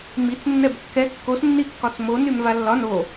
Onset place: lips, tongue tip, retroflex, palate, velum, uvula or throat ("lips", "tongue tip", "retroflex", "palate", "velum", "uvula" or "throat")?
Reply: lips